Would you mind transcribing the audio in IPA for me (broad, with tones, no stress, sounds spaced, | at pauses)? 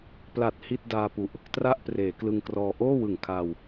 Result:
p l a˨˩ t̚ h i˥˩ t̚ d aː˧ p u˨˩ ʔ | t r a˥˩ ʔ p r eː˩˦ k l ɯ˧ ŋ k r ɔː˧ ʔ oː˥˩ w ɯ˨˩ ŋ kʰ aː˧ w